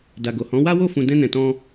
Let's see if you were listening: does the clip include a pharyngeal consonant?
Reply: no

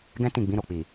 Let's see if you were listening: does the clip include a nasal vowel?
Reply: yes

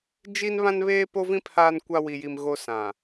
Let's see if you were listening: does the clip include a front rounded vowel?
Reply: no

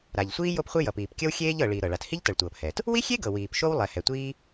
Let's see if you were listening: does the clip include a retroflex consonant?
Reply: yes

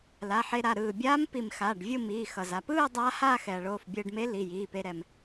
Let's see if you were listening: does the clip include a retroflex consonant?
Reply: yes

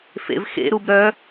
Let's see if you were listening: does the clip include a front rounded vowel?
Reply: yes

